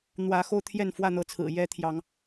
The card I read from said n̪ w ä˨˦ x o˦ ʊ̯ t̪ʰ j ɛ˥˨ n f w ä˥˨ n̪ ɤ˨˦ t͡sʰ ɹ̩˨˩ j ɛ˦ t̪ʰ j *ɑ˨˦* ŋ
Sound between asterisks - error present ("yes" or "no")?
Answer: no